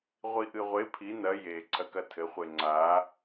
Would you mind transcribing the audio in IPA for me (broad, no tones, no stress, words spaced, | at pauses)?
ʁʷiʔɨʁʷe pʰi nɐ je ǀʰɐkɐtʰɘ χʷeŋ͡ǀa